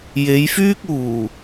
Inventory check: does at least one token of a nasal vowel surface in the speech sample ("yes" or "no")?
no